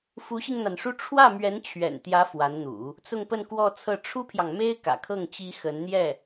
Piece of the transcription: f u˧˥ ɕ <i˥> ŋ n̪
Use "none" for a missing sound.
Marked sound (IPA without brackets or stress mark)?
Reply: i˧